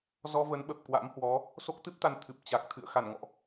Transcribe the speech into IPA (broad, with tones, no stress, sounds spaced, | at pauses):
z ɔ˧ v ə˨˦ n ɓ ə˨˩ p̚ k w a̰˧˥ m h w ɔ˨˦ | s o˦˥ k̚ t̪ ɨ˦˥ p̚ t̪ a˧ n t̪ʰ ɨ˨˩ p̚ t͡ɕ a˨˩ k̚ t̪ʰ ɨ̰˧˨ ə̯ x a˧˩ n ŋ ɔ̰˧˨ ʔ